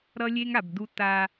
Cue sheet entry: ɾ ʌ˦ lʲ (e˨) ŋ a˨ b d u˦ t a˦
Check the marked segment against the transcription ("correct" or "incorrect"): incorrect